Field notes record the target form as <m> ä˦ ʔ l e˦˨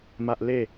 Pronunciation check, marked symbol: correct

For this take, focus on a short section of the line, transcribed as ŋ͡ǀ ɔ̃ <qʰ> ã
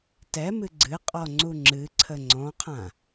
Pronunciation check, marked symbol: correct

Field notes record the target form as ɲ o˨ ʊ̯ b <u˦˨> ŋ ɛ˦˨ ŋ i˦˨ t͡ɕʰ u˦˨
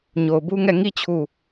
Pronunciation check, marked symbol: incorrect: u˦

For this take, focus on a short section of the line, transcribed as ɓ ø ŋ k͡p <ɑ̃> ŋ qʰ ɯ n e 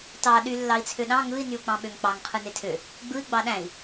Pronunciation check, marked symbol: incorrect: ɑ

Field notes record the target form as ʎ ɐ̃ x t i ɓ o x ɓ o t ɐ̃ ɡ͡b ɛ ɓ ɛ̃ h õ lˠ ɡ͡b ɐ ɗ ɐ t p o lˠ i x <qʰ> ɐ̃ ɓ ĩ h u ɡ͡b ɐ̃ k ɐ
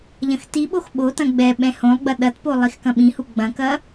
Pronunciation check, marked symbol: incorrect: k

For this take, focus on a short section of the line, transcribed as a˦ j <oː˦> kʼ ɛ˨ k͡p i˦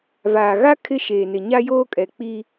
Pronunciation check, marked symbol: correct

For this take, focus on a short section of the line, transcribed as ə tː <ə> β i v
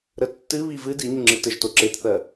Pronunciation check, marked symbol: incorrect: ɨ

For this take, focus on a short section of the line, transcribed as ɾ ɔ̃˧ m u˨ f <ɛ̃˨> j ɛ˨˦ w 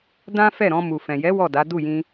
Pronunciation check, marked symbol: correct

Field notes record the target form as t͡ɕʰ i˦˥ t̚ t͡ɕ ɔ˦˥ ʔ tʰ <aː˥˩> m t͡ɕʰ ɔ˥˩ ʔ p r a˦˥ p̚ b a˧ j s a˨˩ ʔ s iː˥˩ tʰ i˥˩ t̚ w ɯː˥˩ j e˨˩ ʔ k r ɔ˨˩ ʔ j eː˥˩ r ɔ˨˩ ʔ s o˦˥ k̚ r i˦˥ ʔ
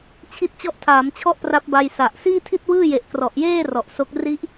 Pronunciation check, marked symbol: incorrect: aː˩˦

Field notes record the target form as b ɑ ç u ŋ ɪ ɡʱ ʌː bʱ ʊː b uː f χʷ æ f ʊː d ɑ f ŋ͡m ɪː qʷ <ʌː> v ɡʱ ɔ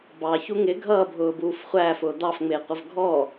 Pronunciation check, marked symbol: incorrect: ʌ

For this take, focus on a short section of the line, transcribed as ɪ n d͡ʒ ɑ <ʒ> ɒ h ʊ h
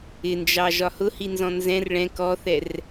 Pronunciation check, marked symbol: correct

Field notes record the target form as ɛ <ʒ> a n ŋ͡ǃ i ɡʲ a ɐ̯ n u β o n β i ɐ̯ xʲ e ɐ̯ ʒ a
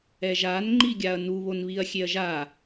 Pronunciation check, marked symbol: correct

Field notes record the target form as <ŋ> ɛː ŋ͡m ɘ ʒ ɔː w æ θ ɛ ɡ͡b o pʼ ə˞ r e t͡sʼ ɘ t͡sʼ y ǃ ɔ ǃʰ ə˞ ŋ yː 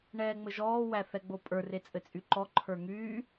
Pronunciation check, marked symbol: incorrect: ɳ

